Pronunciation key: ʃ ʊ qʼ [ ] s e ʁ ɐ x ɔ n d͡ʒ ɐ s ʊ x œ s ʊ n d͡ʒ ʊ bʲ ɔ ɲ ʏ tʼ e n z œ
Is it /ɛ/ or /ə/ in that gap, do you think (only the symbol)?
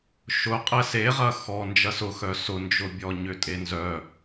ɛ